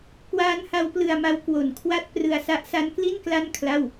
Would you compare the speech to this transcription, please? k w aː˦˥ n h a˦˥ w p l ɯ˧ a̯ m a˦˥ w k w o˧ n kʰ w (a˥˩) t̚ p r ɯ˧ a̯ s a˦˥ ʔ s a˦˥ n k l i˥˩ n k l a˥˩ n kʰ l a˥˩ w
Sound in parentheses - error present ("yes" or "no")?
no